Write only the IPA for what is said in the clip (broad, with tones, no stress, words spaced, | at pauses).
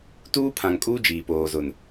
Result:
tuː˦pʰã˨ŋkʼuː˦ d͡ʒiː˨ poː˨zʊ˨n